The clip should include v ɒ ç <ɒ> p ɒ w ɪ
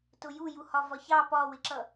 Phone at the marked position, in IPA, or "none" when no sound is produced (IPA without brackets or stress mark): ɑ